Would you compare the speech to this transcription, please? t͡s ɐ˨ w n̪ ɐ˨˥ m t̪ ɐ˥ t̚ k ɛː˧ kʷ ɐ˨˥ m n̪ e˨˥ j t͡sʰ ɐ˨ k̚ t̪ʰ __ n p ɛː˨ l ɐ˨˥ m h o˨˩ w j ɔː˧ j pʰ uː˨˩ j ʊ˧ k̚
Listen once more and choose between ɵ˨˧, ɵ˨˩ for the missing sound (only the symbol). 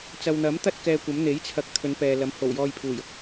ɵ˨˧